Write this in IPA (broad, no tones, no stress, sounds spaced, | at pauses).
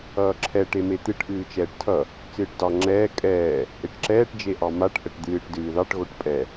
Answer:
ʌː ǁʰ ɛ ʈ e m e t̪ ɨ ʈ ʔ ɨː t͡ʃ ɛː ʈ tʰ ʌ | t͡s ɨː ʈ d ɑ ŋ͡ǁ ɛː kʼ ɛː | ʔ e ʈ ǁ ɛː ʈ d͡ʒ e ʔ ɑ m a ʈ ʔ ə ʈ d̪ ɨː ʈ d ɨː ð ɑ ʈ ɣ o ʈ pʼ ɛ